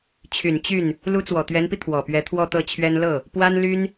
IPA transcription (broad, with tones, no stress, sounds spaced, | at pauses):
t͡ɕʰ y˨˩ n t͡ɕ y˥˩ n | l u˧˥ t͡s w ɔ˨˩ t̪ ɥ ɛ˧˥ n p i˧ t̪ʰ w ɔ˨˩ p ɥ ɛ˧˥ t̪ʰ w ɔ˥˧ t̪ ɤ˥˩ t͡ɕʰ ɥ ɛ˥ n l ɤ˥˩ | p w a˥ n l y˥ n